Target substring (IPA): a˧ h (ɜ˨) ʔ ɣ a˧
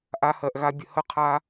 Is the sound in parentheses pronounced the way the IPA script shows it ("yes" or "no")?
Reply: yes